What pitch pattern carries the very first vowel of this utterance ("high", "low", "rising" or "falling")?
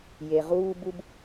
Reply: low